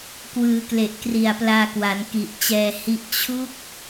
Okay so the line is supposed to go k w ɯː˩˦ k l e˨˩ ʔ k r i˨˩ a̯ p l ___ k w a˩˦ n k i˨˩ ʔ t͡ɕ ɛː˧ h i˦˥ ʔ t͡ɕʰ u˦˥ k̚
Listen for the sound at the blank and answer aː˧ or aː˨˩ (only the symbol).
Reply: aː˧